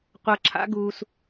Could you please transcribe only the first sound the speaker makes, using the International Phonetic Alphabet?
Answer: qʷ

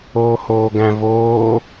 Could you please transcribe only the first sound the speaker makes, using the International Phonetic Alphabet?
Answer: oː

